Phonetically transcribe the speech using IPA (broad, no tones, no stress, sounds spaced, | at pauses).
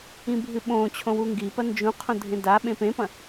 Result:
ĩ bʱ ɨ ɓ õ t͡ɕʰ õ w u ŋ ɡ i p ɐ n d͡ʒ ũ qʰ õ dʱ ẽ d a ɓ ẽ p ẽ p ɐ̃